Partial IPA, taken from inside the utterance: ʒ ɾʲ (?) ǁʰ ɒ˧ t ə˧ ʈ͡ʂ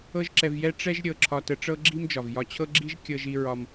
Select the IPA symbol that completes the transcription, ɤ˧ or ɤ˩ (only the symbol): ɤ˧